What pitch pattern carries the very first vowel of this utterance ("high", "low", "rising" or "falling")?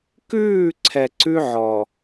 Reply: falling